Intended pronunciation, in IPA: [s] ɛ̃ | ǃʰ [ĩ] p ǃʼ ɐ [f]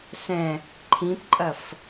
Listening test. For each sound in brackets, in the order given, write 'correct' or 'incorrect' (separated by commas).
correct, correct, correct